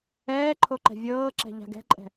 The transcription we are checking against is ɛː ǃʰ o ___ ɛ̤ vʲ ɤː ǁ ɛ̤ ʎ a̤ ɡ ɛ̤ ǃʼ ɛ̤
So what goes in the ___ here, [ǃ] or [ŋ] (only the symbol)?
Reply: ǃ